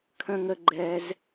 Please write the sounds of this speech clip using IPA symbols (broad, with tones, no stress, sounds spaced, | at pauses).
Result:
kʰ ə̃˦ ŋ ə˦ ɡ͡ǃ ɛ˦ z